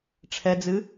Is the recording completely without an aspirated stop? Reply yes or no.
no